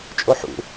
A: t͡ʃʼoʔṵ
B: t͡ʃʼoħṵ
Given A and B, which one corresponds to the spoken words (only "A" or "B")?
B